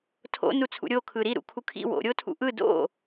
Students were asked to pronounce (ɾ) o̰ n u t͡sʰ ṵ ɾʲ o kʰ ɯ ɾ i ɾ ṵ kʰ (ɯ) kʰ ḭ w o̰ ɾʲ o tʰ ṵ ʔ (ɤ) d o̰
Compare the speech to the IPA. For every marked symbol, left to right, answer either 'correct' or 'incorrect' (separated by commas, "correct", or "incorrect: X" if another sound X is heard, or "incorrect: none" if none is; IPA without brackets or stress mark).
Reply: incorrect: tʰ, incorrect: u, incorrect: ɯ